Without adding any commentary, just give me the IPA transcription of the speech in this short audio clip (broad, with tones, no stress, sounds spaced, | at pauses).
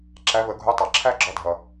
ǁ æ˨˦ v ə˨˩˦ ɡʱ u˨˦ tˤ ɑ˩ ǁʰ æ˦˥ ɡ͡ǁ ɔ˨˦ dʱ ʌ˩